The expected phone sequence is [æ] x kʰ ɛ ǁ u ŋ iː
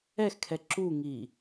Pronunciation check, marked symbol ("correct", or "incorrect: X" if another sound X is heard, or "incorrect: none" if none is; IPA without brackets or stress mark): incorrect: ɛ